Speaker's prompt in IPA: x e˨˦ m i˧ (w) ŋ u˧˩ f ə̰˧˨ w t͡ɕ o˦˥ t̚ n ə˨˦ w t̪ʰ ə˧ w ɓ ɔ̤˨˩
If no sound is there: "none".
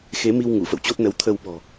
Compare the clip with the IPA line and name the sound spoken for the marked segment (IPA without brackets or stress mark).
w